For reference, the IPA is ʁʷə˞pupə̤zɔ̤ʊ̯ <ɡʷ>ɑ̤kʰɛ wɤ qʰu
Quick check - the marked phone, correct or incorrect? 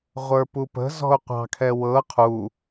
incorrect